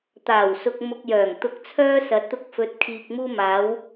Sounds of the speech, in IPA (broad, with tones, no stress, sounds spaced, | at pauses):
t̪ aː˨˩ w s ʊ˨ k̚ m ʊ˨ k̚ j œː˨˩ ŋ t̪ ʊ˨˥ k̚ t͡sʰ œː˧ s ɐ˨˥ t̚ t̪ ʊ˧ k̚ f ɵ˨˥ t̚ kʰ iː˨ k̚ m uː˧ m aː˨˧ w